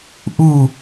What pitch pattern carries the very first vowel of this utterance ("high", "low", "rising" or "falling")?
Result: falling